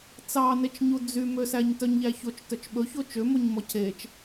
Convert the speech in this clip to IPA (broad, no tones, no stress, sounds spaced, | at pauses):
t͡s ɑ n e t͡ʃ ɲ u d͡z y m ø s æ ɲ t œ ɲ ʎ æ ç o t͡ʃ t œ t͡ʃ ɓ ɵ ç o t͡ʃ ø m o ɲ m ɔ cʰ e t͡ʃ